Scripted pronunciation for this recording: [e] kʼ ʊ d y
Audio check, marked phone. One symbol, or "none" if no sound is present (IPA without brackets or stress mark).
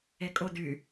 e